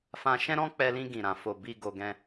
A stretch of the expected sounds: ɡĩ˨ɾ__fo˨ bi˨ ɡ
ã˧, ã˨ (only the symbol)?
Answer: ã˨